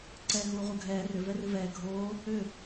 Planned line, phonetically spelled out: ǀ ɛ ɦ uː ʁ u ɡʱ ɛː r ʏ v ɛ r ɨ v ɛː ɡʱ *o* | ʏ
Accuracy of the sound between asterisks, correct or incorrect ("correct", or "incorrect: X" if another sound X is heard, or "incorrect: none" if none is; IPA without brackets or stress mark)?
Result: incorrect: oː